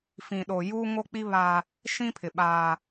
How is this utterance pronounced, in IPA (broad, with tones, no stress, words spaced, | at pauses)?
fĩ˨ɗo˨ juː˦ŋo˦k͡pi˦ βaː˦ | ʃĩ˦pʰɪ˨ ɓaː˦